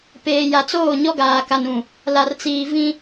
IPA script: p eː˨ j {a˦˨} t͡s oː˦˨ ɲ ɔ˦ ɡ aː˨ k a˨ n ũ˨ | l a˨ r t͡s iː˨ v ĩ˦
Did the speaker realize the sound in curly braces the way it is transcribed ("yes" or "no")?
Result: no